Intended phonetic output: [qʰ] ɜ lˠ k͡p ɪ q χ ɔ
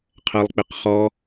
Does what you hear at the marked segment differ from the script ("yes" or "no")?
no